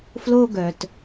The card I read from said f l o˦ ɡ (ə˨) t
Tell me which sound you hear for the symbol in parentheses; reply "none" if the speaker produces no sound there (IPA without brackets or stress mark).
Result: œ˨